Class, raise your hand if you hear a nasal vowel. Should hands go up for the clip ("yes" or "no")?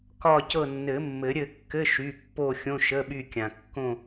yes